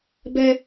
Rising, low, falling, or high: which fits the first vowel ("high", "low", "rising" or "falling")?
high